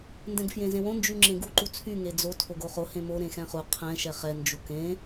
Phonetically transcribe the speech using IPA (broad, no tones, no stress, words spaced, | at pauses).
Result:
ndɛ̃ɡfjẽzẽwõ nd͡ʒyŋ͡ǁẽɡu ǃut͡sʰy ŋed͡zo tʰoɡoχo hẽmo ɾẽxɛ̃χu qʰɛ̃ ʃɛχɛ nd͡ʒukẽ